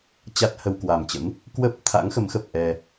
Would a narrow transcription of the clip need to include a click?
no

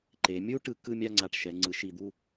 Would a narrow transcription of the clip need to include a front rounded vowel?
no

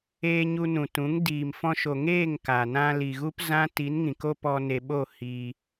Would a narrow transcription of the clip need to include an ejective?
no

